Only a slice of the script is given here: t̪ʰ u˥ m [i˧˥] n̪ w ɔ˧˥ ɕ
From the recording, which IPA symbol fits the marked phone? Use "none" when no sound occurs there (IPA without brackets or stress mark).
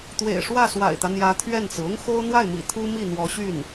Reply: i˥˩